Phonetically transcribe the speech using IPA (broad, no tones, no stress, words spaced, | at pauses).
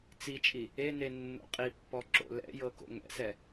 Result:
t͡sit͡ʃʼi | ene nːo̰qʼipːɔ ǁo̰lɛ̰jɤ ko̰ŋɛ̰sɛ